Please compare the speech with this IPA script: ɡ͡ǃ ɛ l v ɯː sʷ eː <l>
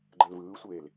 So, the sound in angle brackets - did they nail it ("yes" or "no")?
yes